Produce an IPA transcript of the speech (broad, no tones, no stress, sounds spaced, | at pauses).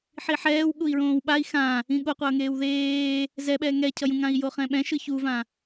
ħ i ħ ɛː w ɠ u i̯ ɹ õː w ɓ a i̯ x ã | ĩ ɠ o qʷ ʌː ŋ eː w ð eː | z ɛ ɓ ɛː ŋ ɛ cʰ ʌ j ũ ŋ ã i̯ j o χ ɛ̃ ɓ ɛ̃ ʃ ɯ ç u v ã